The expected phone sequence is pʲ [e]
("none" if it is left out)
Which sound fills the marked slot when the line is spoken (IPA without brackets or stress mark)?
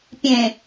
ẽ